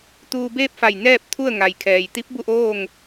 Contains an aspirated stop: yes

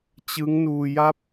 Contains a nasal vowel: no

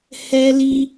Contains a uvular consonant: no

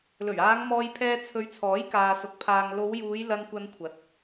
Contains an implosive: no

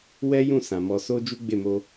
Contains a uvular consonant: no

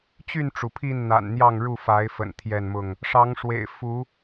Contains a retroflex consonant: yes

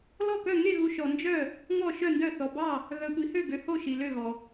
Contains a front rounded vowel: yes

